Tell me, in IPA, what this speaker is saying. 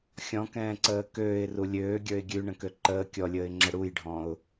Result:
xʲɔ̃kɛ̃ːǀəː køːɪ̯ru lʲøːɡʲə˞ɪ̯ ɡʲʉɳə̃kø ǃəː kʲɔlʲəːɪ̯ŋ͡ǁə ɽujɖʱɔ̃ʊ̯

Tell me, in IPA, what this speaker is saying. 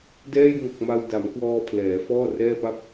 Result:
dɛː˥˩j ŋo˨˩k̚ ma˧wda˩˦mkwɔː˧ pʰlɛː˩˦ fɔː˥˩rɛː˥˩pa˥˩p̚

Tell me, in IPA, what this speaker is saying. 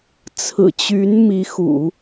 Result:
t͡sʰɹ̩˨˩t͡ɕy˧˥nmi˧˥xṵ˨˩˦

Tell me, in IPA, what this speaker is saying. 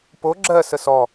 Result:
po ɡ͡ǁɜ səsɔ

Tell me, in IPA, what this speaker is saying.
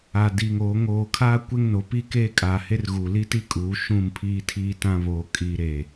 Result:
a˨diː˨ŋoː˨˦ ŋoː˨kʰaː˦ kʷe˦ŋno˨˦pi˦keː˦ kʼaː˨ he˦rɣuː˨ li˦ti˦kʼuː˨˦ ʃũ˦˨mpʰiː˦tʰiː˦tã˦ βoː˨kʼiː˨ ɾeː˨

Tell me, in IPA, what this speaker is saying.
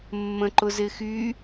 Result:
mːə̃ǃʊzɪxy

